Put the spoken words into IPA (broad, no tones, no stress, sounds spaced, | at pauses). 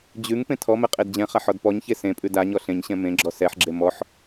d͡ʑ ʉ ŋ p ẽ tʰ ɔ m ɛ qʼ e d d͡ʑ ɛ̃ χ a ħ ɔ d p ɔ ɲ ç e s ẽ pʼ ʉ d a ɲ ɔ ɬ ẽ ɲ ɕ ɛ̃ m ẽ ɡ͡ǁ ɔ s ɛ ħ ɡ͡ǁ e m ɔ ħ